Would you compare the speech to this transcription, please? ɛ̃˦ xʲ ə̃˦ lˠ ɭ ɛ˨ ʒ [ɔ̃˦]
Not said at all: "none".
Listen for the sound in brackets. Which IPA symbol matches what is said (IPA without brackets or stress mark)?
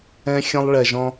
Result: ɔ̃˦